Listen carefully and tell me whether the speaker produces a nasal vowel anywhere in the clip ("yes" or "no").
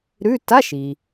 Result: no